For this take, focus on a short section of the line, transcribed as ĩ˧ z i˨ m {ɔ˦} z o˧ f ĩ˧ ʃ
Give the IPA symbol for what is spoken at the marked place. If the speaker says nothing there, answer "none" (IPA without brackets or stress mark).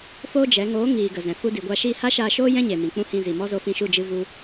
ɔ˦